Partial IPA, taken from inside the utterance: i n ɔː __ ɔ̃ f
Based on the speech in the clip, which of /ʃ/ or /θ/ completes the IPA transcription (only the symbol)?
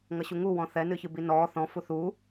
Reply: θ